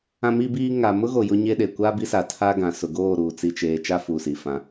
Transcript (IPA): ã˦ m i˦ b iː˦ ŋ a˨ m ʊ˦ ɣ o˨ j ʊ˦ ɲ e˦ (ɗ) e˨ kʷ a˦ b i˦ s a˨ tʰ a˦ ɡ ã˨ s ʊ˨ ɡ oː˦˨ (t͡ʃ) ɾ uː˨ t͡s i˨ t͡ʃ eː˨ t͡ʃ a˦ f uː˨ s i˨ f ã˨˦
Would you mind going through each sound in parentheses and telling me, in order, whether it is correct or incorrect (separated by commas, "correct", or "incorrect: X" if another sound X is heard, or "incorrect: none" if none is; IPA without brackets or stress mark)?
correct, incorrect: none